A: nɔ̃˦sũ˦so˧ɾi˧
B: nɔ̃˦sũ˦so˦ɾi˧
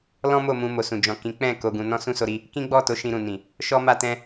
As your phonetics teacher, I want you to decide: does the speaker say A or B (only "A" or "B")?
A